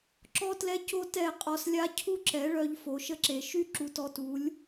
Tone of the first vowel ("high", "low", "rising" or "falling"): high